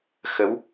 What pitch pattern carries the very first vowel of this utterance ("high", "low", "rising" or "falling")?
rising